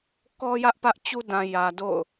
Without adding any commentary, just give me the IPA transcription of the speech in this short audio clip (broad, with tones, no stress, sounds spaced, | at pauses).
k ɔ˦ j ä˦ ʔ p ä˦ ʔ t͡ɕ u˦ d ã˨ j ä˨ d o̰˦˨ ʊ̯